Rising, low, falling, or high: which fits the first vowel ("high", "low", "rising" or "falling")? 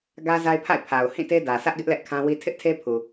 high